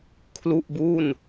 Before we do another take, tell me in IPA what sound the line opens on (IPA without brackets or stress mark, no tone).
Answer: kʰ